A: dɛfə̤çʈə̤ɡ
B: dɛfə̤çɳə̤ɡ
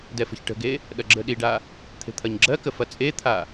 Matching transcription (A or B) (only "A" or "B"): A